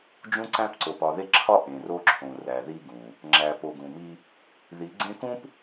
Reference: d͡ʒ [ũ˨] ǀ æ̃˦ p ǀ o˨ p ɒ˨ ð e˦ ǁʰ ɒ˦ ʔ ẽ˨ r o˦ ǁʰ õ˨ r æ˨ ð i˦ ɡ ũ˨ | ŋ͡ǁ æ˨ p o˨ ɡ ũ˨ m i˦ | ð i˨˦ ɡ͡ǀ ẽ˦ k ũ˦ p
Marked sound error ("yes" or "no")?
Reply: yes